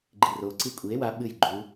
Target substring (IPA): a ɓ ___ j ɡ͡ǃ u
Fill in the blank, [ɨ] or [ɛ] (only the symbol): ɨ